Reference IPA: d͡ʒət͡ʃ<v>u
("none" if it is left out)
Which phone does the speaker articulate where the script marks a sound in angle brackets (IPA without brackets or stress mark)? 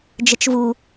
v